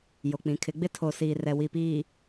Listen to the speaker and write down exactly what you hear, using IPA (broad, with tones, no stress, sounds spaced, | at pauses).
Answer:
j o˨ k͡p ĩ˨ kʰ ɪ˨˦ ɡ͡b ɪ˦ tʰ o˨ s iː˨ r ɛ˨ w i˨ p iː˨